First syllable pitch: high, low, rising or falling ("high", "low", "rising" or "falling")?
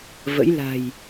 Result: rising